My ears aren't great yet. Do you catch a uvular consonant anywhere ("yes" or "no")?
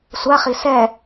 yes